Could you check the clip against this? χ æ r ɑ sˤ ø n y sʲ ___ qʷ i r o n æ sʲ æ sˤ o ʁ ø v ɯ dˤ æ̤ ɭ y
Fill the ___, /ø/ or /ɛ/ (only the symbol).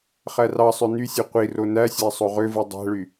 ø